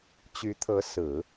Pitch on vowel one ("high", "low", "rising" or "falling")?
rising